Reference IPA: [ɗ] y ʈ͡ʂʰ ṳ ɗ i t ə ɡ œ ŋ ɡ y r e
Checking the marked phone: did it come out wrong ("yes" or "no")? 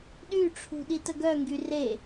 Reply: no